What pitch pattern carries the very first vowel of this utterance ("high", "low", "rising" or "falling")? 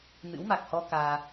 rising